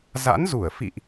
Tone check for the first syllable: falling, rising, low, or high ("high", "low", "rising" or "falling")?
rising